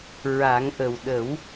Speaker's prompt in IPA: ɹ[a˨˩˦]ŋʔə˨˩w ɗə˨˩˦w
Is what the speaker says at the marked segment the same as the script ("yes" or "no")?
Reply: yes